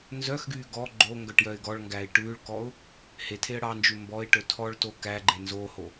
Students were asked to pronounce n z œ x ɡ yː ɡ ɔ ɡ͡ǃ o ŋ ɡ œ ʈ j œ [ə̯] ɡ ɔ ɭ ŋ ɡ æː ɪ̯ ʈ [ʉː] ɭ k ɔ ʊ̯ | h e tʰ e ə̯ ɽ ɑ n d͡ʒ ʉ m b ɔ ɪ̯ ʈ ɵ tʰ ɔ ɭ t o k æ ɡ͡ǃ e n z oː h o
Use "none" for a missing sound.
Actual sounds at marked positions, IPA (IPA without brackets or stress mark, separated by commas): ɪ̯, ʉː